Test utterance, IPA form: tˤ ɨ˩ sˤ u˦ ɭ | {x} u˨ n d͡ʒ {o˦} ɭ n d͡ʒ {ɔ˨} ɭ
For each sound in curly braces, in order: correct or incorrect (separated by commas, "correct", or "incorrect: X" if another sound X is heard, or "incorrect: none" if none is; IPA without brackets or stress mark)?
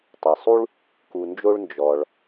incorrect: k, correct, correct